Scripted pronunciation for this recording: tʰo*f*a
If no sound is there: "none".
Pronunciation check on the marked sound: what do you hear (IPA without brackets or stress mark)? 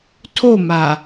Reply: m